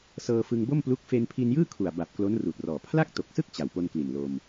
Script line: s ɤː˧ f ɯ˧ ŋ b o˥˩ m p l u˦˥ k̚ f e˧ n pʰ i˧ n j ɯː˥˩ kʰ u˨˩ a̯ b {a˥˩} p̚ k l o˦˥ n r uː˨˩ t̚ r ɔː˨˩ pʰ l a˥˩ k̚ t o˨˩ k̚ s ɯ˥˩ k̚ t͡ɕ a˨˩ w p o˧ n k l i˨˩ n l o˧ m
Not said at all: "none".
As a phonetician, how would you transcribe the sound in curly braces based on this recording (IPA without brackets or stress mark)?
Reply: a˨˩